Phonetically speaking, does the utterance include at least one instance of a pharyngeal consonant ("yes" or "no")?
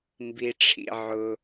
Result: yes